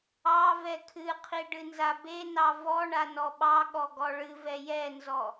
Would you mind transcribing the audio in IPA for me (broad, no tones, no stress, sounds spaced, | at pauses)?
ɑ v ɛ kʰ ɨ qʰ i ɖ ɨ n z a b e n ɑ v ɔ ɳ a n ɔ ɓ ɑ ɠ ɔ ɡ ɔ ɭ ɨ v ɛ j ɛ n z ɔ